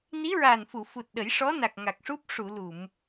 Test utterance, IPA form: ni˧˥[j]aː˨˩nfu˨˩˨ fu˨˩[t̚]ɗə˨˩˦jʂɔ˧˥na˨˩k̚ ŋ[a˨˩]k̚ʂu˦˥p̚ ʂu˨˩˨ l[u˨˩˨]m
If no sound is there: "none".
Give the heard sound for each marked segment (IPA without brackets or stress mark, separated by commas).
ɹ, t̚, a˨˩, u˨˩˨